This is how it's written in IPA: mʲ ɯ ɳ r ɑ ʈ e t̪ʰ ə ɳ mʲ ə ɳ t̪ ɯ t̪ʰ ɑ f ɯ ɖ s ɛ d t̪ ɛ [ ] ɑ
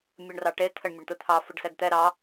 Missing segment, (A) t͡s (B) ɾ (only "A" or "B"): B